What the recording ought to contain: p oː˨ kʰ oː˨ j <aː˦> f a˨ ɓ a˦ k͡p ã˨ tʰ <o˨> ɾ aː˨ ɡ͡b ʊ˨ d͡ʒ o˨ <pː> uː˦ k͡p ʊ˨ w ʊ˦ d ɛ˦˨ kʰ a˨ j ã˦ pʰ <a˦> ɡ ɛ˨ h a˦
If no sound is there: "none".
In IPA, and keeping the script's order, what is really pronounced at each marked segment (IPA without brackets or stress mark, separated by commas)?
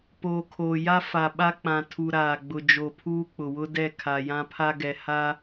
a˦, u˨, pʰ, a˦